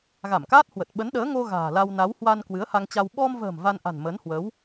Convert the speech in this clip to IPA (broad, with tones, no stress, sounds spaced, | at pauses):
ɣ a˧˩ m k aː˦˥ t̚ h w ə˨˩ t̚ ɓ ə˨˦ n ɗ əː˨˦ ŋ o˧ ɣ a̤ː˨˩ l a˧ w n a˨˦ w h w a˧ n k w ɨ˨˦ ə̯ h a˧ ŋ t͡ɕ a˧ w ɓ ɔ˧ m v ə̤ː˨˩ m v a˧ n ʔ a̤˨˩ n m ə˨˦ n h w əː˨˦ w